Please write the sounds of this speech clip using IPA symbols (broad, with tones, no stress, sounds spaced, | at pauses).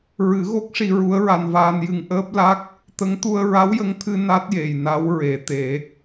ɹ ɨ˨˩˦ ɣ o˦˥ k̚ ʂ i˧ ɹ u˧˥ ə̯ ɹ a˧ n v aː˧ n j ɨ˧ ŋ ʔ əː˦˥ p̚ l a˦˥ k̚ | t̪ ə˧˥ ŋ t̪ u˧ ə̯ ɹ a˧˥ w j ə˧ ŋ t̪ʰ ɨ˧ n a˦˥ t̚ j e˨˩ j n a˧˥ w ɹ e˨˩˨ t̪ e˨˩˦